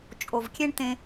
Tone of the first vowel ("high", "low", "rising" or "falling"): low